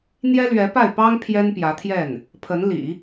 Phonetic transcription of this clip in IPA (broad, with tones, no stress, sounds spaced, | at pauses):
n̪ j ɛ˥ l ɥ ɛ˧˥ p a˥˩ ɪ̯ p ɑ˥ ŋ pʰ j ɛ˥ n p j ä˧˥ t̪ʰ j ɛ˥˩ n | pʰ ə˧˥ n l ḭ˨˩˦